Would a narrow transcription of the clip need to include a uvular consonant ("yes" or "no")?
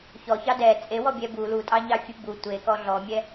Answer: no